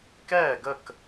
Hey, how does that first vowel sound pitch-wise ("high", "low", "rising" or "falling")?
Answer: falling